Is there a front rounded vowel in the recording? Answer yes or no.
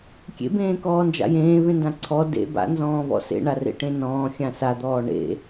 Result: no